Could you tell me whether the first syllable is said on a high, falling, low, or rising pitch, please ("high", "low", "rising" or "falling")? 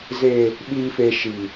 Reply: high